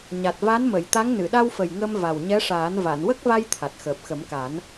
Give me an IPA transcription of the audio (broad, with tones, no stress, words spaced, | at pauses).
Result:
ɲa˨˩t̚ va˧˥nmə˨˩˨j t̪a˧˥ŋ nɨ˨˩˨ɗa˧wfə˨˩j ŋə˧m va˨˩wɲɛ˧˥ʂaː˨˩˦n va˨˩˨nwə˦˥k̚va˧j t̪ʰa˨˩t̚xəː˨˩p̚xə˨˩˦mka˨˩˦n